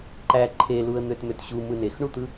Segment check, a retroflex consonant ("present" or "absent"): present